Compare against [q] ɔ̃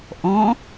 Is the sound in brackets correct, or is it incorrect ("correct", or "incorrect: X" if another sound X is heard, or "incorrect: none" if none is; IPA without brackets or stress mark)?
incorrect: ʔ